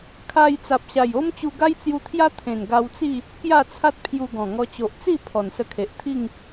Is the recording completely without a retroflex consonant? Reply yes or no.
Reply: yes